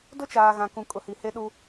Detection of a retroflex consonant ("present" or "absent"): absent